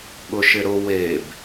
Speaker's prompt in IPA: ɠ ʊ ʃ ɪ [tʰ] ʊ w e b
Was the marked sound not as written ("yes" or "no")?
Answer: yes